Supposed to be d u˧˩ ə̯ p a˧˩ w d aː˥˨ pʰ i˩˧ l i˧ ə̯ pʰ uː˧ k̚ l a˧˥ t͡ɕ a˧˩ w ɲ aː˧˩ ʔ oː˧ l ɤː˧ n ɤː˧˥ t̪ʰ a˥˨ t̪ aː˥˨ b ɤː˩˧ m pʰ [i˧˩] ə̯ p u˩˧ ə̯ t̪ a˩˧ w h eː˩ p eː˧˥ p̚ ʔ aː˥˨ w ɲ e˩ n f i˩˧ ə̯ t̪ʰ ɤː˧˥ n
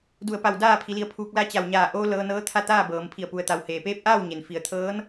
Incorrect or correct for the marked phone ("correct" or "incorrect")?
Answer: correct